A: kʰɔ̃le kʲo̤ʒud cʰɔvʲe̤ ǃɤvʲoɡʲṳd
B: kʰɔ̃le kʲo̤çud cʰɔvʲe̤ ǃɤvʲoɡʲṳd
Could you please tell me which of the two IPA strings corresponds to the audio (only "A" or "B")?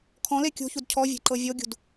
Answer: B